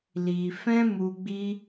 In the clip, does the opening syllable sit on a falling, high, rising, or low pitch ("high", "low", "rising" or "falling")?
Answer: low